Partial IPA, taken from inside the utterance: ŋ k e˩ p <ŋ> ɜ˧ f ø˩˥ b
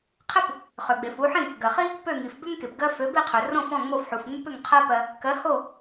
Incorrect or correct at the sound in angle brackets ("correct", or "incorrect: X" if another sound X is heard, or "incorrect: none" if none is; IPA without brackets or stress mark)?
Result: incorrect: ɡ